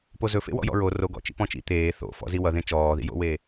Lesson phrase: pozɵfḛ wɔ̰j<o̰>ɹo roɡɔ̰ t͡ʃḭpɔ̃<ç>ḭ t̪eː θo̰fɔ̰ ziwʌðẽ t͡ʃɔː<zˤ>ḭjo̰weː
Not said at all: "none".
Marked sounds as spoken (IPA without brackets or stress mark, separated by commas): ɔ̰, t͡ʃ, ð